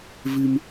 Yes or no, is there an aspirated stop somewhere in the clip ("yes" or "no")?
no